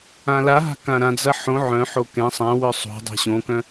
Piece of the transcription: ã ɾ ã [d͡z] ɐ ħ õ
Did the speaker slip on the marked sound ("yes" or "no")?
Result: no